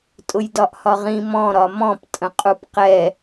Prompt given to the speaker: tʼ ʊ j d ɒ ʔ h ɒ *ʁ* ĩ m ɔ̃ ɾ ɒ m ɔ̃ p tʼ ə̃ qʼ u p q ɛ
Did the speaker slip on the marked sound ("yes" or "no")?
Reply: no